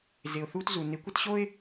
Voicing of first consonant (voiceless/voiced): voiced